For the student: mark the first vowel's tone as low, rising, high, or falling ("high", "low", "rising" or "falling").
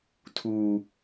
low